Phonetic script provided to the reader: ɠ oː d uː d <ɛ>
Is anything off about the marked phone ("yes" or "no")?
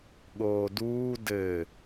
yes